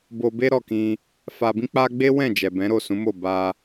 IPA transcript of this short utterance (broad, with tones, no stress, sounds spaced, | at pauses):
b o˧ b e˦ ɾ ɔ˦˨ k ĩ˧ | f a˧ b ĩ˦ k͡p a˧ ɡ͡b e˦ w ɛ̃˦˨ d͡ʒ ɛ˨ b ɛ̃˨˦ ɾ o˦˨ s ũ˨˦ m o˦˨ b a˧